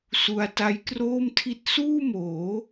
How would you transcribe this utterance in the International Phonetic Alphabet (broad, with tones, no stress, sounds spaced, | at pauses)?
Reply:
s u˧ a̯ t a˦˥ j k r oː˥˩ m tʰ i˥˩ t̚ s uː˥˩ m oː˩˦